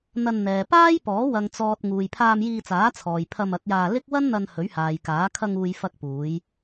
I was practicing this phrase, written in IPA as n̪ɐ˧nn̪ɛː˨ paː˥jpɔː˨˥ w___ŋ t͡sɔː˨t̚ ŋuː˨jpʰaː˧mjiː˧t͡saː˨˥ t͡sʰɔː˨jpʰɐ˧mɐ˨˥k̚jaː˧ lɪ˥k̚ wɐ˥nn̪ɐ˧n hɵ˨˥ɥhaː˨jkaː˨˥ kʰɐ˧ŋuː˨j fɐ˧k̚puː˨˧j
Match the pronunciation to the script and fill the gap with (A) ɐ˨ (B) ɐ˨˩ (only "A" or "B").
A